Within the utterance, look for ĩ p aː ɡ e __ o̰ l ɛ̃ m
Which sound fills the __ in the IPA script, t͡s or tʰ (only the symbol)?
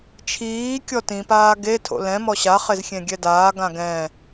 tʰ